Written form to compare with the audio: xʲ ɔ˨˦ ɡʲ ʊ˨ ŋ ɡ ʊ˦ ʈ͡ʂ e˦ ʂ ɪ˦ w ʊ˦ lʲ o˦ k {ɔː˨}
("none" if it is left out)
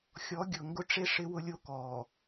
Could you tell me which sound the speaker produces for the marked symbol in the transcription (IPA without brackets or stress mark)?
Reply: ɔː˨